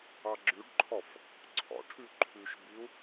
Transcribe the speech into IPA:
ɑ ɡ͡ǁ ʉ ɖ ǃʰ ɔ f | ǀʰ ɔ̰ ʈʰ ʉ ǃʰ ʉ ʃ b i u̯

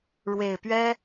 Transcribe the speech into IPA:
ɻ w e˨˩ ɪ̯ p ɥ ɛ˥

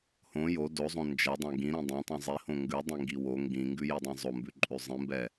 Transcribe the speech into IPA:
h õ j o d o zˤ õ n d͡ʒ ɛ dˤ ɛ̃ ɡ ĩ ɾ ĩ dˤ ɛ̃ tˤ ĩ zˤ i h õ ŋ ɡ ʉ dˤ ĩ ŋ ɡ i w o ŋ ɡ ĩ ŋ ɡ ʉ j i dˤ ĩ zˤ o m b ʉ ǃʼ ʉ zˤ ĩ m b ɛ

